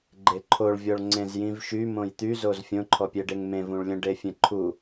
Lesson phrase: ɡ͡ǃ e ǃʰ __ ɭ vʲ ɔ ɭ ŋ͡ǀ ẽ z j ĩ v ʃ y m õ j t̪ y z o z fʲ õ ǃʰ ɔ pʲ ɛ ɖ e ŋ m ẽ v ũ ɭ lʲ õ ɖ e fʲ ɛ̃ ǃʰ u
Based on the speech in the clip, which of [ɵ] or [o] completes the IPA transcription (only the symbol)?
o